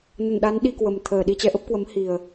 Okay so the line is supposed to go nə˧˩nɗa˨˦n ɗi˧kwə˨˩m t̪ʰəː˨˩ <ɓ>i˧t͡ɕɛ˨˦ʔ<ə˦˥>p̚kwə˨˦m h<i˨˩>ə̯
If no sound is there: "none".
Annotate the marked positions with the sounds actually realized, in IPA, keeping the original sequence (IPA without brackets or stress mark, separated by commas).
ɗ, ə˦˥, i˨˩